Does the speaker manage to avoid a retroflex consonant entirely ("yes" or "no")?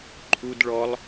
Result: no